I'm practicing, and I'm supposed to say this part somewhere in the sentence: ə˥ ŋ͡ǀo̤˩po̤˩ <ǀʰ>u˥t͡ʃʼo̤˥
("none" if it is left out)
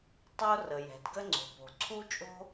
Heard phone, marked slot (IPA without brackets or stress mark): ǀʰ